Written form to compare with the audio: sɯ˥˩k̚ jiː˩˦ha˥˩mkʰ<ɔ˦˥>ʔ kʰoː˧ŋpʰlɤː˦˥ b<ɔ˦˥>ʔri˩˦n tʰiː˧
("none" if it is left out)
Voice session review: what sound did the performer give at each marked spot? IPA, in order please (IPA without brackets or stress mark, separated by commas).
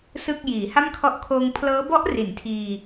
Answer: ɔ˦˥, ɔ˦˥